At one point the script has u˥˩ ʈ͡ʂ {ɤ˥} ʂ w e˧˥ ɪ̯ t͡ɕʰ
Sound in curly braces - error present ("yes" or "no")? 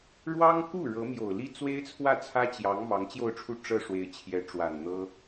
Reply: no